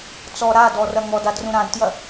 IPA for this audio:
t͡sɔ ɾa dɔrɐ ŋɔdadrũ ɾãdtjɐ

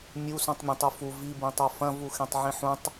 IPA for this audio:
mʲu sũtˤmʲɐ̃tˤufu vi bĩtˤofɐ̃ vuxẽtˤʕĩħũtˤ

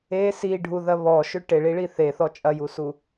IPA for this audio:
e siɖʱuðɐ βɔʃʏ ʈeɭiɭi θeθɔ t͡ʃʼɐjusu

